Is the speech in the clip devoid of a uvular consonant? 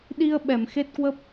yes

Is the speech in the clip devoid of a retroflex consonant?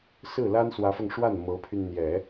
no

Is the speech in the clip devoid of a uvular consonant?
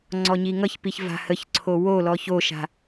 yes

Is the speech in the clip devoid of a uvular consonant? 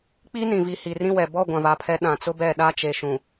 yes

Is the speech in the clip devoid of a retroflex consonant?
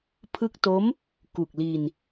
yes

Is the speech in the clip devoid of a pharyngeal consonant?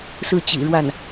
yes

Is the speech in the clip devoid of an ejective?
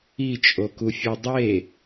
no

